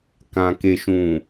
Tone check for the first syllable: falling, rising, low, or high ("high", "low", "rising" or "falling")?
low